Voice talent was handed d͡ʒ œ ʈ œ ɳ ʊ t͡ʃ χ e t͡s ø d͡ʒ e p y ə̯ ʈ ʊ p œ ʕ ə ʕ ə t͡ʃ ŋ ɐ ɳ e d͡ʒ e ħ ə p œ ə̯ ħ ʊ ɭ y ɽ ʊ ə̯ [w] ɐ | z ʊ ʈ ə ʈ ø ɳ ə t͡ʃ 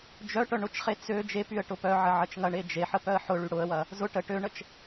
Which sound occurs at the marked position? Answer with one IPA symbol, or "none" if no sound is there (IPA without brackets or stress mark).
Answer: w